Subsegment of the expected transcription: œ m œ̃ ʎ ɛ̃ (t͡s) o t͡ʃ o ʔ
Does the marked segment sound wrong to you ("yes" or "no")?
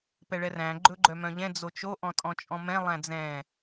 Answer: yes